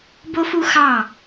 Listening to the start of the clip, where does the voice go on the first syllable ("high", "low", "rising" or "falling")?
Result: high